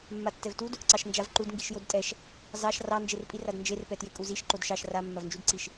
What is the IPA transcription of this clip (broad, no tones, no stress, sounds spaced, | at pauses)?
mː a tː ɛ v t u d | ǀ ɑ ʃ n d͡ʒ a v ǃ u d ŋ ɡ i ʃ j o d tʼ ɛ ʃ | z ɑ ʃ r ɑ n d͡ʒ e r pʼ i r a d n d͡ʒ e r p ɛ t j e kʼ u z i ʃ ǃ o d ʃ ɑ ʃ r a mː a v n d͡ʒ u d ǀ i ʃ